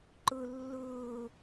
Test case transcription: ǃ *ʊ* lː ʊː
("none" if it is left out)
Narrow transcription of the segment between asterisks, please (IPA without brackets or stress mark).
ʊ